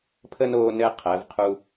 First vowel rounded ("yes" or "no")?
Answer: no